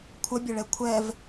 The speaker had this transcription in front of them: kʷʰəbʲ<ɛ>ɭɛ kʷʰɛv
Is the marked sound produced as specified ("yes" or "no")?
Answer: no